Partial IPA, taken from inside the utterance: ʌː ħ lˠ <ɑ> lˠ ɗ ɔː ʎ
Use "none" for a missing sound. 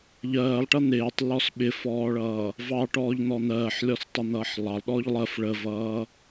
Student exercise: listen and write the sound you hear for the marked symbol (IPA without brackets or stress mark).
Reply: ɑ